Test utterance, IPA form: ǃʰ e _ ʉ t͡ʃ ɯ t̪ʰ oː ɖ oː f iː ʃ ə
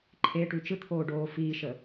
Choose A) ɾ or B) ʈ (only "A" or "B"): B